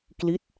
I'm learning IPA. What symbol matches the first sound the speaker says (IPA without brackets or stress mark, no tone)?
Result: k